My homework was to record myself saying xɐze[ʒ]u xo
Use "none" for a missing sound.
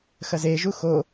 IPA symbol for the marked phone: ʒ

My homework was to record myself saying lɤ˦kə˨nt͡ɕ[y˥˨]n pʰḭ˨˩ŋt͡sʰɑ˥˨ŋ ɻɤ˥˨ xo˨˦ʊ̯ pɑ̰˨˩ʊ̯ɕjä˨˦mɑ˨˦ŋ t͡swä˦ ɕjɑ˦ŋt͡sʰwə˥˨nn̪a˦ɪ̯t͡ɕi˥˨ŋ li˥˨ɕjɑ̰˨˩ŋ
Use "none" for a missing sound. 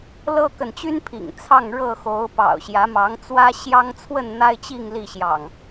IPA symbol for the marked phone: y˦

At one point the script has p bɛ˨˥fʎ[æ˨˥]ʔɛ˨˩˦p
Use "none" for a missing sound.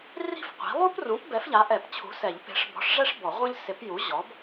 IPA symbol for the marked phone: a˨˥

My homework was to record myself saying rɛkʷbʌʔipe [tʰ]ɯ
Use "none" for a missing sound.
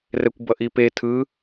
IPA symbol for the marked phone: tʰ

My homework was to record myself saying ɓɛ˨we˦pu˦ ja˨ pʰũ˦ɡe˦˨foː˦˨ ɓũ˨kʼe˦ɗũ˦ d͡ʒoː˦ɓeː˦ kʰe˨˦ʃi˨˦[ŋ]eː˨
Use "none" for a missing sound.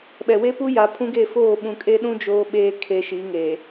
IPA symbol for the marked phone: ŋ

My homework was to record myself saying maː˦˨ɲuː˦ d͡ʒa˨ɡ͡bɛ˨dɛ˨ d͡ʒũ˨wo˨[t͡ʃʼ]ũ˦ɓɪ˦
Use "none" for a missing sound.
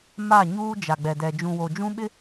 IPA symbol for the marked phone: d͡ʒ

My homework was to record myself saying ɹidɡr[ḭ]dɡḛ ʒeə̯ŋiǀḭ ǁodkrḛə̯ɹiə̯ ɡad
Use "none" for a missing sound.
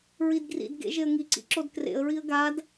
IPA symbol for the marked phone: ḭ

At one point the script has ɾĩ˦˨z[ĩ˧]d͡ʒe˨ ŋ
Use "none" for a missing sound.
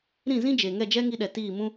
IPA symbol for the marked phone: ĩ˦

